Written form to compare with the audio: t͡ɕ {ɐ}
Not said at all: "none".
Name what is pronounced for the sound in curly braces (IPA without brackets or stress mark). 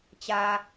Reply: a